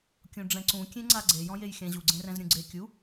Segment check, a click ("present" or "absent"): present